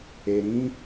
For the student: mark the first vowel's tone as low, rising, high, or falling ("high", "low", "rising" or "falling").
low